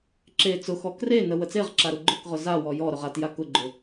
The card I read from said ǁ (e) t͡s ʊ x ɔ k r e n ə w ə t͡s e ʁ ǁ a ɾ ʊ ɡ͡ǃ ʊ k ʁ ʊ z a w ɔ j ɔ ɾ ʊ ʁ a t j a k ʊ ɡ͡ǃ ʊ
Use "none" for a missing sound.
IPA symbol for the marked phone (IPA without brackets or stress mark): e